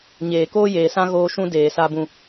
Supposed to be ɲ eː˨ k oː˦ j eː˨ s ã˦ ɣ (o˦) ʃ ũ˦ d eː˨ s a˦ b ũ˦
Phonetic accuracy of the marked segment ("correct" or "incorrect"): incorrect